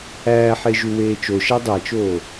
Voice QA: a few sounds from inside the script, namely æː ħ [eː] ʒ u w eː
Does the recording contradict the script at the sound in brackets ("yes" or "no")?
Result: yes